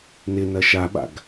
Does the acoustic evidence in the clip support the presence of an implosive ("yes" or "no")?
yes